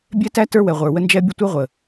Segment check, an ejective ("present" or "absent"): absent